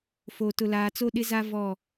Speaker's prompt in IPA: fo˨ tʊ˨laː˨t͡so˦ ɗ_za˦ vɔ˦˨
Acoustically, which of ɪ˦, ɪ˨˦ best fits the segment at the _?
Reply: ɪ˦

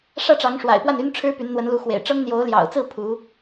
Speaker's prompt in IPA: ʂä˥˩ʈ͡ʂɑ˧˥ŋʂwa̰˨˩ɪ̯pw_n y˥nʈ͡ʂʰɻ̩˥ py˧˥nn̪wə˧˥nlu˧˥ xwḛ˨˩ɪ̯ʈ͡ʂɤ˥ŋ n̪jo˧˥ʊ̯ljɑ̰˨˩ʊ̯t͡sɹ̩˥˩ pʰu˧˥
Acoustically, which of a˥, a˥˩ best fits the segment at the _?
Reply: a˥˩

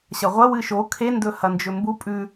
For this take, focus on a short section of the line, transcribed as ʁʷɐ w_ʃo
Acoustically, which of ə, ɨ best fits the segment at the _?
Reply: ɨ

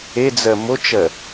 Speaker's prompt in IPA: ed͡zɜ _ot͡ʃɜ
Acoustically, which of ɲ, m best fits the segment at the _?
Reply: m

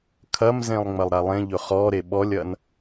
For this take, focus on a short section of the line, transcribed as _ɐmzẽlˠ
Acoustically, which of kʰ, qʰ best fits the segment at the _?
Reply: kʰ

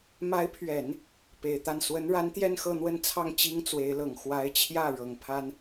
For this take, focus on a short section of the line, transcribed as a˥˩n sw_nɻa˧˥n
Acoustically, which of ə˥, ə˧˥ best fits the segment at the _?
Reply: ə˧˥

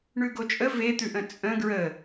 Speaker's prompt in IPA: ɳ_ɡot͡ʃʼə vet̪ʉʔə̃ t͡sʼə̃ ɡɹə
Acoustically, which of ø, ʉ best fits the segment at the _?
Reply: ʉ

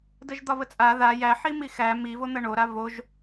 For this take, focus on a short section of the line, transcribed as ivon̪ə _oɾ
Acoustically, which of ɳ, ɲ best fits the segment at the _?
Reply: ɳ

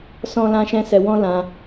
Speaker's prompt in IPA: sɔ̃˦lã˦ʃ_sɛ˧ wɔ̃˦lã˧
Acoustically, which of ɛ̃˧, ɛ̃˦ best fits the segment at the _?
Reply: ɛ̃˦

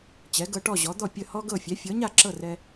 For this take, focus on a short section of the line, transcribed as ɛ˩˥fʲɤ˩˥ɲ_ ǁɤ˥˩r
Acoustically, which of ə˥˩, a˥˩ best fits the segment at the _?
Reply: a˥˩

